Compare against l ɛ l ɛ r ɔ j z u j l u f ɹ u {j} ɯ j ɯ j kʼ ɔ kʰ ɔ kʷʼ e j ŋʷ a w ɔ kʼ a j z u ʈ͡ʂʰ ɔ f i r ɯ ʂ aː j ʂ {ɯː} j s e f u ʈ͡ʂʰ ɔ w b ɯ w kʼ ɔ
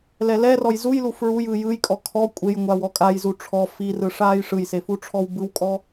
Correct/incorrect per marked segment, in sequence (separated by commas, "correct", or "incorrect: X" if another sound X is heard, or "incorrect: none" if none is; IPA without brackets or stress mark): correct, incorrect: ɯ